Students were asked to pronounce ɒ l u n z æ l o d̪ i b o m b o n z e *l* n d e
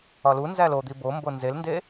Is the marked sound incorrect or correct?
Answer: correct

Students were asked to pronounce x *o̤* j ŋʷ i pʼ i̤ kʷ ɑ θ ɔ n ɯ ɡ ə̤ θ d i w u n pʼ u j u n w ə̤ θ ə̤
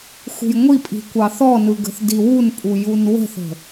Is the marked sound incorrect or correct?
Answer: incorrect: ṳ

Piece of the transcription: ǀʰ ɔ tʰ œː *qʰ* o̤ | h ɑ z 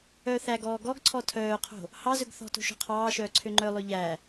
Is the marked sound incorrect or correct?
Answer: correct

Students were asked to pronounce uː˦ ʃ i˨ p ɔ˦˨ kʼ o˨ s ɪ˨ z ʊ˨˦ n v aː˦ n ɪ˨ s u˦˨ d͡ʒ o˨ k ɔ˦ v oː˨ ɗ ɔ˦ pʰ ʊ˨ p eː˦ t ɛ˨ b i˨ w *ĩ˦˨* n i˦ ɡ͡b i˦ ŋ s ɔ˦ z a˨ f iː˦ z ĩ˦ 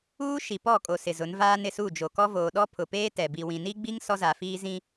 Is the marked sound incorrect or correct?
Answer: incorrect: ĩ˨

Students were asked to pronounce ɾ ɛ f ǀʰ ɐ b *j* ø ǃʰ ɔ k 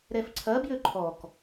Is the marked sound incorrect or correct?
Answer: correct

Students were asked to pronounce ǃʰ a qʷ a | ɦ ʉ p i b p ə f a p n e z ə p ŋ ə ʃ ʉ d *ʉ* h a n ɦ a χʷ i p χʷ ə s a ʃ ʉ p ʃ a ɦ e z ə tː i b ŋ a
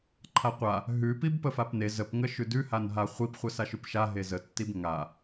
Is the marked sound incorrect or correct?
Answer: correct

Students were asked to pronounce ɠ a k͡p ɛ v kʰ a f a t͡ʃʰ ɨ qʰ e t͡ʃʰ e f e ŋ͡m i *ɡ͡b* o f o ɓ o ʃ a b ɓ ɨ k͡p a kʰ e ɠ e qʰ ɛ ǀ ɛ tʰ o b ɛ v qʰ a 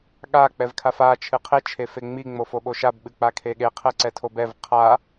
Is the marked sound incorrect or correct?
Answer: incorrect: ŋ͡m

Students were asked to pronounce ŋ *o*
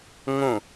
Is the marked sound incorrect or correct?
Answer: incorrect: õ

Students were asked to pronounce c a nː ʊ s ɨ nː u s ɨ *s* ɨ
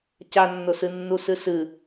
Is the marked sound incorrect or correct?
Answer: correct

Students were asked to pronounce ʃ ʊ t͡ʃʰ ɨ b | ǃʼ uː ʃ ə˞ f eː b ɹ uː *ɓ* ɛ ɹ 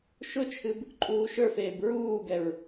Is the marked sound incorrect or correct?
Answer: incorrect: ɡ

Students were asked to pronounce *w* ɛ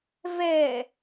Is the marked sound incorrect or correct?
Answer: incorrect: v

